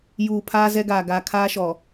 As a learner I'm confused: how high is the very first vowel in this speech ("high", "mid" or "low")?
high